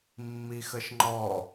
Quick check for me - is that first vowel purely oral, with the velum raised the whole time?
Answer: yes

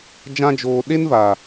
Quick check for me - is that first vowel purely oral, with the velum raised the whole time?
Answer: no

